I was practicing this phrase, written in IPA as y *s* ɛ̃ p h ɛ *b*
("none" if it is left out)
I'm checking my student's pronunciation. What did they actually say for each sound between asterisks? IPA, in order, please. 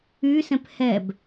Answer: s, b

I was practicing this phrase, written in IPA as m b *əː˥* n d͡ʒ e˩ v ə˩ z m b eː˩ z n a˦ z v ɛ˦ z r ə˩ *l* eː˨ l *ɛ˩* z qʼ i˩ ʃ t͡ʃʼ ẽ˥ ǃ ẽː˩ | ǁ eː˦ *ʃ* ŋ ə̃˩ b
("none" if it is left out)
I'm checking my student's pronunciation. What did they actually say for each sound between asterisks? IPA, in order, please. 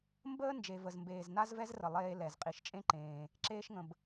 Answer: əː˥, lˠ, ɛ˩, ʃ

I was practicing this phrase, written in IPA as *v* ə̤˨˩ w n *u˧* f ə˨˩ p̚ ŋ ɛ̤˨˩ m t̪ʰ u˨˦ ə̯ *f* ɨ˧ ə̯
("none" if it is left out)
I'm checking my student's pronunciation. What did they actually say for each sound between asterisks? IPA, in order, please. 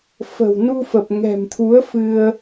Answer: f, u˧, f

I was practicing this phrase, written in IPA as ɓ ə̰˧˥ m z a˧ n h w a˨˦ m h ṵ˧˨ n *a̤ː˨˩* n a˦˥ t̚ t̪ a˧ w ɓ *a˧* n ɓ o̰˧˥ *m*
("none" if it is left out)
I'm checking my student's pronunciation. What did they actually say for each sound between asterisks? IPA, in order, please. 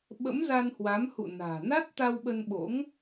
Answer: a̤ː˨˩, ə˧, ŋ

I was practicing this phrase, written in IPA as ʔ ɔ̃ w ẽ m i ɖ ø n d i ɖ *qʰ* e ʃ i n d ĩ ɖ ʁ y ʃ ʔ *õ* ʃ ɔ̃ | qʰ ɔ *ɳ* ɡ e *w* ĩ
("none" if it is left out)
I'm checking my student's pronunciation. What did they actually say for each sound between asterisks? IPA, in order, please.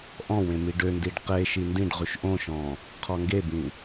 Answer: q, õ, ŋ, b

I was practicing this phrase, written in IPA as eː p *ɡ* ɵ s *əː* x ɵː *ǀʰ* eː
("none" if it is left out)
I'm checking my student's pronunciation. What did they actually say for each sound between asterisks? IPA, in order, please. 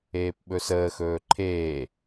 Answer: ɓ, əː, ǃʰ

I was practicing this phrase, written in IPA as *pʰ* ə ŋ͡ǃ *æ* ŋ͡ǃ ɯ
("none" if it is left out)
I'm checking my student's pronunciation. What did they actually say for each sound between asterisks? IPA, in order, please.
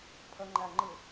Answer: pʰ, æ

